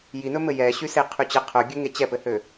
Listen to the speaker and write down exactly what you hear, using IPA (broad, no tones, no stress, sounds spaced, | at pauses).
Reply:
j i n ɵ m ɘ j ɛ ɕ y s e qʰ y t͡ɕ ɘ qʰ ɵ ɡʲ ɵ ŋ e t͡ɕ ɛ p ɘ h ø